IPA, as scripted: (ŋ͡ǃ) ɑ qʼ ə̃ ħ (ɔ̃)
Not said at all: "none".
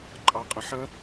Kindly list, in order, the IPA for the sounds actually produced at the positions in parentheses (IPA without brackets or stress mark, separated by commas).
ǃʼ, ə̃